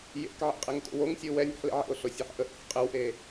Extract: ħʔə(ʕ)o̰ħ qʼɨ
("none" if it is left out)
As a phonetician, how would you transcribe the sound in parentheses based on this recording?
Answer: ʔ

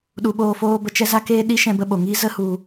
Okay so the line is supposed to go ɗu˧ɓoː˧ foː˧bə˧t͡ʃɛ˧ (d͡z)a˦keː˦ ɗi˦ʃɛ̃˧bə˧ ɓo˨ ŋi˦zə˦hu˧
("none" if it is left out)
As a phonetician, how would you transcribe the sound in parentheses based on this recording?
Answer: z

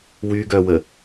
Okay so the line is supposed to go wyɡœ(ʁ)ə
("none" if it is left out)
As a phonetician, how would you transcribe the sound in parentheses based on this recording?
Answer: w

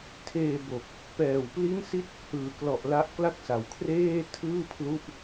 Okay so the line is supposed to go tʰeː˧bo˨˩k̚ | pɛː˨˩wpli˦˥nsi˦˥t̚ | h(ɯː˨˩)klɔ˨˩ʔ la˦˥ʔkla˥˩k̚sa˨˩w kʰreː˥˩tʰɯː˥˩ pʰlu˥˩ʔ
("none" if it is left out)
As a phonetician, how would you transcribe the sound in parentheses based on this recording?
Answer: ɯː˨˩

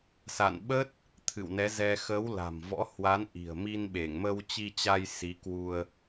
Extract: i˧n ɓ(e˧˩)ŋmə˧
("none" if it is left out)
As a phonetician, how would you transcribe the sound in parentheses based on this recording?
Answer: e˧˩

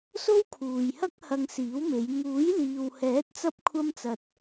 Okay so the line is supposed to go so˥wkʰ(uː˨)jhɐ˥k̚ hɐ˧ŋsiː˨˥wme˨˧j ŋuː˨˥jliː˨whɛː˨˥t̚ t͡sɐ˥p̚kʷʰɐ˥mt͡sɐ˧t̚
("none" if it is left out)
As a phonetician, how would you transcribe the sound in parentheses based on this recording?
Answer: uː˨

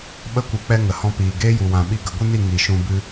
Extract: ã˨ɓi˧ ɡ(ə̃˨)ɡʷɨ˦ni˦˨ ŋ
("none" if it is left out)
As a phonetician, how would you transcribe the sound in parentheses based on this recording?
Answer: ə˨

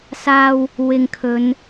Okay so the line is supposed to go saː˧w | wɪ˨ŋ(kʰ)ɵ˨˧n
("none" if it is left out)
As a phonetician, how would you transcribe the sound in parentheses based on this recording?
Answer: kʰ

